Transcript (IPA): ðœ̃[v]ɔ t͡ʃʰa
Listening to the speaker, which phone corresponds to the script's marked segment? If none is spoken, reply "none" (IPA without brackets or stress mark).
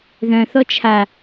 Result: θ